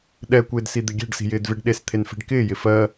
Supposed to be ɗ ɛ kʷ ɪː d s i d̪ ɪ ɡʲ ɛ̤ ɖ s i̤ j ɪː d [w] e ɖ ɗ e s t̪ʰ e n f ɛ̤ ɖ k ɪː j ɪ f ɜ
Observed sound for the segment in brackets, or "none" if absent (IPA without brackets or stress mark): v